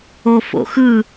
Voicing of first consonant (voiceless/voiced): voiceless